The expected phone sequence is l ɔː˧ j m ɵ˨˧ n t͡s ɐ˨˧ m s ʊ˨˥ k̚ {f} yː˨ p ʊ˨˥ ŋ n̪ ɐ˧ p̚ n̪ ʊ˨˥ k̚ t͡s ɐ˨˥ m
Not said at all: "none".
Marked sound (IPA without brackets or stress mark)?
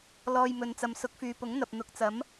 f